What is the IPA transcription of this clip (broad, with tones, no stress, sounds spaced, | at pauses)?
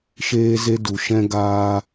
ʃ eː˧ z e˧ d u˨ ʃ ɛ̃˧ ɡ aː˧